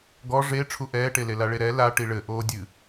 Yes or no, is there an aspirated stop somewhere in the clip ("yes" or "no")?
yes